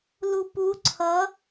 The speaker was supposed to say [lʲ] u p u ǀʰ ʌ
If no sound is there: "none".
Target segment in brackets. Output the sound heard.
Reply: l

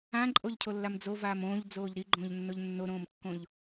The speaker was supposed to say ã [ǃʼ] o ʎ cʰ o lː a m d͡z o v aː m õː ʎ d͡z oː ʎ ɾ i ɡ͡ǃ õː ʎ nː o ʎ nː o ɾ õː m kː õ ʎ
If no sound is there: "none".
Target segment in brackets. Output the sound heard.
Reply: ǃʼ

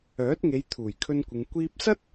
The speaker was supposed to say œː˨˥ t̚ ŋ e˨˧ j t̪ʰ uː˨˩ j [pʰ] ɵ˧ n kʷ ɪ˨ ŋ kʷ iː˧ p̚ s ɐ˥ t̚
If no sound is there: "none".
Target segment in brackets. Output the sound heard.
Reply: kʰ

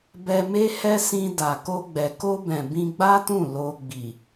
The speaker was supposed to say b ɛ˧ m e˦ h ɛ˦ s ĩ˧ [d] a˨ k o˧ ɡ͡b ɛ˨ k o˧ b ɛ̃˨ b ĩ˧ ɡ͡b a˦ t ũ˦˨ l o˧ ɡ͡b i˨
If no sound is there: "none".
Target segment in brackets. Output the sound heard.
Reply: d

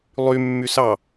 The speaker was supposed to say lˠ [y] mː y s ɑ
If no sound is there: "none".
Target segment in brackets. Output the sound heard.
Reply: y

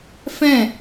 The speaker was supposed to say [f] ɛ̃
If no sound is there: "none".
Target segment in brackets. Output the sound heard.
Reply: f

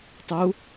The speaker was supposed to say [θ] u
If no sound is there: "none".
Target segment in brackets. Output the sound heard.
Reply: tˤ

